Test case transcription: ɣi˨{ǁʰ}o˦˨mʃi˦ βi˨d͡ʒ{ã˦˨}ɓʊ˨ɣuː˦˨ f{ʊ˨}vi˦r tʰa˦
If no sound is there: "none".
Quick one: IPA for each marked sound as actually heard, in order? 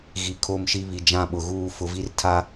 kʰ, ã˦˨, ʊ˨

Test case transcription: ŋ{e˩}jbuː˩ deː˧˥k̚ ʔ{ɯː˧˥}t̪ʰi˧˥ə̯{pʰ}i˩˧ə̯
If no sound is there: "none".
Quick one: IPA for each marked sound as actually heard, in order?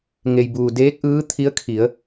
e˩, ɯː˧˥, kʰ

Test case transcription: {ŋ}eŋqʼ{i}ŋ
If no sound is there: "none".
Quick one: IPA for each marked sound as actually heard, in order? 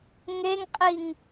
ŋ, i

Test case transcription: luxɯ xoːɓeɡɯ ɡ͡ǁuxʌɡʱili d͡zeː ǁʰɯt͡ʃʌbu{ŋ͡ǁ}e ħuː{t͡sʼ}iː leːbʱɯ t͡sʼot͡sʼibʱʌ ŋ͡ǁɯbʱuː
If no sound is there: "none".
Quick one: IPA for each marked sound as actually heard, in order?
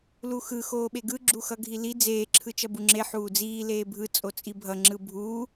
ŋ͡ǁ, d͡z

